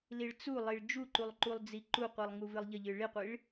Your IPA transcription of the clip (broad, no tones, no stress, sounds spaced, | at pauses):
l i ɭ t͡s u lˠ i ɭ d͡ʒ u ǃ u lˠ ǃ u lˠ d͡z i ǃ u qʷ i lˠ ŋ u v ɨ lˠ ʎ ə ʎ ɨ ɭ i qʷ i ɭ